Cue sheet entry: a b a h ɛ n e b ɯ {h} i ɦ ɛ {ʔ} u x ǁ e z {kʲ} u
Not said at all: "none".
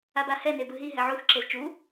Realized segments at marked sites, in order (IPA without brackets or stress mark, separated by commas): ɦ, ʕ, t͡ʃ